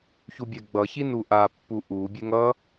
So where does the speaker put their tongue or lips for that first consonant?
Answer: palate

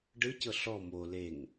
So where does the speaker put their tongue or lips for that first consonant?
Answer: retroflex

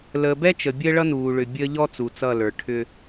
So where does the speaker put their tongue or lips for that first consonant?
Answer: tongue tip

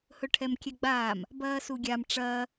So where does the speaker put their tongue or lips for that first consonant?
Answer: throat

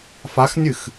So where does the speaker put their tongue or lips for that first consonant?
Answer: lips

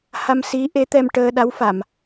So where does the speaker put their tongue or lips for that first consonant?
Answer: throat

